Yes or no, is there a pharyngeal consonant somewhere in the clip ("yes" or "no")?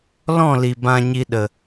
no